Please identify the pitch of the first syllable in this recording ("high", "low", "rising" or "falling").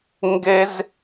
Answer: high